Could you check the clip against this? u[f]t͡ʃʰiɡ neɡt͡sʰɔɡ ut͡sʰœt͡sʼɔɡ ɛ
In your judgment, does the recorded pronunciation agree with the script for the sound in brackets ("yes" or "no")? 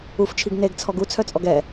yes